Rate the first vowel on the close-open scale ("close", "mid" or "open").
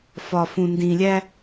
open